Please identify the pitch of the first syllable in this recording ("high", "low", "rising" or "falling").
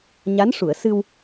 rising